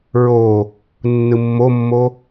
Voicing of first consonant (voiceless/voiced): voiced